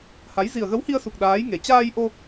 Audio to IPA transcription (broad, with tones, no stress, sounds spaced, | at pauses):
h a˨˦ j z i˨˩ ə̯ ɣ ə˨˦ w h i˧ ə̯ s u˨˩ k̚ ɗ aː˨˦ j ŋ e˨˩ t͡ɕ aː˧ j ʔ o˧